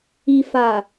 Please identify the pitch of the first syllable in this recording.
low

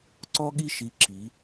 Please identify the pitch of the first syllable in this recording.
high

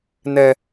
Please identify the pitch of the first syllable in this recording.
low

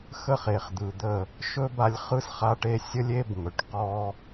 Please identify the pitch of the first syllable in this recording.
falling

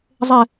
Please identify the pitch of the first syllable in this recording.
falling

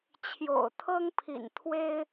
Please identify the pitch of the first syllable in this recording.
low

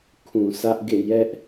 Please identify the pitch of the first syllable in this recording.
low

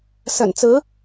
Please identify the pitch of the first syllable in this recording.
low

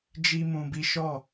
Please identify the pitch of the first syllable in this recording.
high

